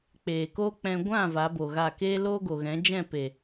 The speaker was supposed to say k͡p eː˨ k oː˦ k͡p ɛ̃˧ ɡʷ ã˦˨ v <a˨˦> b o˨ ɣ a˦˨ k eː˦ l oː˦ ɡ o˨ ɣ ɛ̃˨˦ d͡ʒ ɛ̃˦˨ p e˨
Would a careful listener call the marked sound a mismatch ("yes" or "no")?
no